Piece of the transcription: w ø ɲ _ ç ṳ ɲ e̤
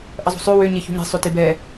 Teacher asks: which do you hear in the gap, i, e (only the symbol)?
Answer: e